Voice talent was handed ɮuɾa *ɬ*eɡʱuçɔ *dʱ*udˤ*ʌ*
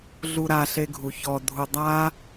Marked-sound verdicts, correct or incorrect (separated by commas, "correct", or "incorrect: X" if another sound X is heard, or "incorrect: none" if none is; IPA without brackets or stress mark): correct, correct, incorrect: a